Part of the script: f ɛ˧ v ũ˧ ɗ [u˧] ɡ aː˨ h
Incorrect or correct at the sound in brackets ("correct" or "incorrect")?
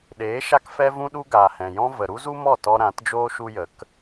correct